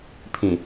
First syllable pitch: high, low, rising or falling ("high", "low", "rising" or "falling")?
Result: low